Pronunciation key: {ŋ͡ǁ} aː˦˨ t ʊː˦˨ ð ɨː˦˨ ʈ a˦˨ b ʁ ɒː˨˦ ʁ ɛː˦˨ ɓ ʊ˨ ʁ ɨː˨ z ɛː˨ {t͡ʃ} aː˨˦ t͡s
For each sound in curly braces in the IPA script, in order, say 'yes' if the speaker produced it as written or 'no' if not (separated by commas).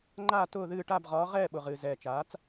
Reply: no, yes